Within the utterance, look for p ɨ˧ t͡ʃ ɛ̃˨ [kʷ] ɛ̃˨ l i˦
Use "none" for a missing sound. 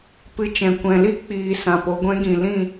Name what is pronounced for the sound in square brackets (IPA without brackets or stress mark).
kʷ